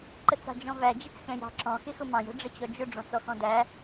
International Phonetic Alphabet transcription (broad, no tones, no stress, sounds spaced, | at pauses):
ǃ ə t͡s ɑ̤ d͡ʒ ɔ̃ v æ d͡ʒ ɪ t͡s x ɛ̃ j ɑ̤ ǁ ɔ̃ x ɪ x ʊ m ɑ̃ j ə̤ ɖ͡ʐ ə t͡ɕ ɔ d͡ʒ ʊ ɖ͡ʐ ɔ̃ t͡s ɔ x ɔ̃ d æ